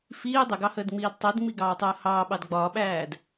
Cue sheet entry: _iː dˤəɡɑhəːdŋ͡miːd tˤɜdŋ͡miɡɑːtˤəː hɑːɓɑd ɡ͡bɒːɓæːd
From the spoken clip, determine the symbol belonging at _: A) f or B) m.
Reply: A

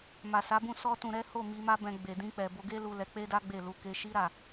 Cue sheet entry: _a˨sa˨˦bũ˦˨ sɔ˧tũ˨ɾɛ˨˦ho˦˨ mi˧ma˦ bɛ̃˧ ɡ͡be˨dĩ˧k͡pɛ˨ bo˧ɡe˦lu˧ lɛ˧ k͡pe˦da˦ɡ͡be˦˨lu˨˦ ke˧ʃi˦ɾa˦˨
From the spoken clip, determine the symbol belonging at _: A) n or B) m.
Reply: B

